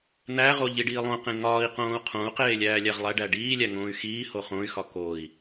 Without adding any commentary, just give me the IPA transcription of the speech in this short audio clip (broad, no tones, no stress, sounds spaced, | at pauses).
n̪ æ ʁ o ʎ i ɖ iː lˠ õ q ẽ ŋ ɒː i̯ q õː u̯ qʰ õ u̯ q eː lʲ æː lʲ æ ʁ lˠ æ ɖ æ ɖ iː lʲ æ ŋ õː y̯ x iː h o χ õ y̯ x ɒ k o i̯